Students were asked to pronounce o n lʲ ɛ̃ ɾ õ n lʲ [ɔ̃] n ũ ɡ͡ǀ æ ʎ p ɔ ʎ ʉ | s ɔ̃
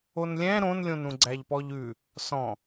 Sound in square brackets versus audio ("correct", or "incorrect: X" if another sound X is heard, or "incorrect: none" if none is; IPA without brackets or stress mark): incorrect: õ